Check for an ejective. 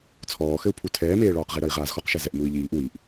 absent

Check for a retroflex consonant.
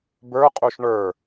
present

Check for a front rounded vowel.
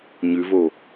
absent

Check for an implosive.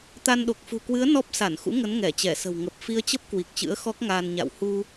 present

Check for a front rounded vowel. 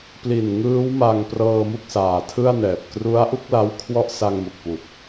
absent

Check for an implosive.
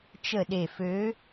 present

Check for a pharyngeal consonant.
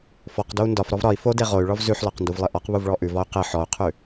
present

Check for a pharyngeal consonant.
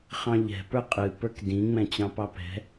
absent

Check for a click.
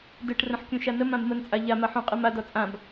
absent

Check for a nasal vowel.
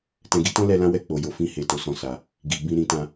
present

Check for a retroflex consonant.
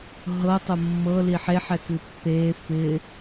absent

